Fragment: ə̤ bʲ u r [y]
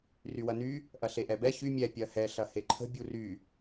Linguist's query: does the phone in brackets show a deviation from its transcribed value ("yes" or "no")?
no